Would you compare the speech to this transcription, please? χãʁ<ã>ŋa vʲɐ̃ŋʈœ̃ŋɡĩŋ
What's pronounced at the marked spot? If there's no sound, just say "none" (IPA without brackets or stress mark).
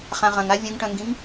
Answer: ɐ̃